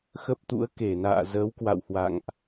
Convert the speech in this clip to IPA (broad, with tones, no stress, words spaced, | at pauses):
xə˦˥p̚t̪ṵ˧˥ə̯ ke˧˩na̰ː˧˨ zəː˨˦wkwa̰˧˨w hwa̰˧˨ŋʔ